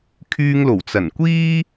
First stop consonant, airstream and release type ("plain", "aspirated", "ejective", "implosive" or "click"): aspirated